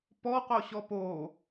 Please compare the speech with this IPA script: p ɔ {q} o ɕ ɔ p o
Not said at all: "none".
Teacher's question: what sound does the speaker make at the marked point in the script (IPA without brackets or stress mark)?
q